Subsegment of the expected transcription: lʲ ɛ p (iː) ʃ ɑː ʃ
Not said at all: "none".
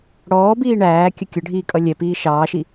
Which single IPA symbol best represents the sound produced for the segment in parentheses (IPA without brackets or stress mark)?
iː